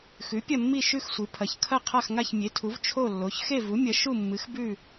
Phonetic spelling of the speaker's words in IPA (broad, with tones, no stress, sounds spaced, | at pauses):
x ʉ˩˥ pʲ ɐ˥˨ mː i˥˨ ʃ ʉ˥˨ x sʷ ɨ˩˥ pʰ ɐ˩˥ ç kʰ ɐ˥˨ qʰ a˥˨ x ŋ a˥˨ ç mʲ e˩˥ tʰ u˩˥ v t͡ʃʰ o˥˨ lː o˩˥ ç x e˥˨ v u˩˥ mʲ ɐ˩˥ ʃ u˥˨ mː ɨ˩˥ x b ʉ˥˨